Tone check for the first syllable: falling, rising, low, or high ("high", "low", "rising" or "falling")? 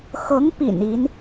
rising